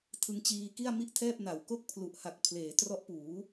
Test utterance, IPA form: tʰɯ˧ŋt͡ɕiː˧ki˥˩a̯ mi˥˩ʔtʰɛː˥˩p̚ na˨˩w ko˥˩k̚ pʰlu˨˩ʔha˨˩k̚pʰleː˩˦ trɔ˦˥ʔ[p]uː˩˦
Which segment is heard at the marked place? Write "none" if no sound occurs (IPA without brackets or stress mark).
p